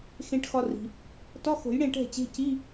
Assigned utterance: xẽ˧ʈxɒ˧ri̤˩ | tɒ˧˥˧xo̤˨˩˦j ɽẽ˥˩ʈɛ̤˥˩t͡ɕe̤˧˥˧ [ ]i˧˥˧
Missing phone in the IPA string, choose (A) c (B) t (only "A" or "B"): A